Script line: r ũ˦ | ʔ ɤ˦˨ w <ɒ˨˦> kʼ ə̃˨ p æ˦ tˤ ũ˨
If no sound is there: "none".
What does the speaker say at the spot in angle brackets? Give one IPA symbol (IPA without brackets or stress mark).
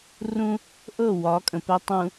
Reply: ɒ˨˦